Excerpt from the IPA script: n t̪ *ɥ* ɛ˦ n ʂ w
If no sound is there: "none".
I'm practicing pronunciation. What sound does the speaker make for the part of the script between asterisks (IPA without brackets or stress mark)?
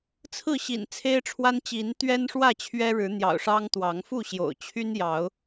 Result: ɥ